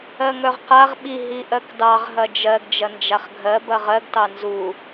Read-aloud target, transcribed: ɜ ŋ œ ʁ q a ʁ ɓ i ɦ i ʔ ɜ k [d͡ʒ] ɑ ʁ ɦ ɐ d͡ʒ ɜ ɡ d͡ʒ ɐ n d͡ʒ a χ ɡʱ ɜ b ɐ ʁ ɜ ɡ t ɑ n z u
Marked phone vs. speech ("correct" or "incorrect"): incorrect